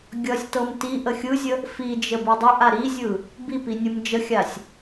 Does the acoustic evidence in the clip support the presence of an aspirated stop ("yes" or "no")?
no